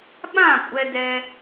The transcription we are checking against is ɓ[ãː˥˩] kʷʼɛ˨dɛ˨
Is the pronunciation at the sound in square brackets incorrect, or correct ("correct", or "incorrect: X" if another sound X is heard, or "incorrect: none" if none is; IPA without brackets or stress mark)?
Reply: correct